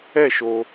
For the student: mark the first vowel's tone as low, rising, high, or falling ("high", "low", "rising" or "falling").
falling